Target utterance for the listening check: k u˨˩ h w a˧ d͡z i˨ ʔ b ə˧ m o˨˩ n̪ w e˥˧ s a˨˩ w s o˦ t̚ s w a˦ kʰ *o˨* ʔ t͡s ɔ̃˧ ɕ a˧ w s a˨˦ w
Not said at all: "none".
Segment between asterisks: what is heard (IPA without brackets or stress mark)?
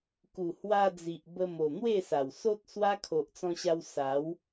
o˨